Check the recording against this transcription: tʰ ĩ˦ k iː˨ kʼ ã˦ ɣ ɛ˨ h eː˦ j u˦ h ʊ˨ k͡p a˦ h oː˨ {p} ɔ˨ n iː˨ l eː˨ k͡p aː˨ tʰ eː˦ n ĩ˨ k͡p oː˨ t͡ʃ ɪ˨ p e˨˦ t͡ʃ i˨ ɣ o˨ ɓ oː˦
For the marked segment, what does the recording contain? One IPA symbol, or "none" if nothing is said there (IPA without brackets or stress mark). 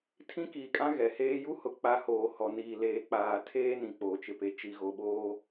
h